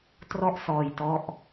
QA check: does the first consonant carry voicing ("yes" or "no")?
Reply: no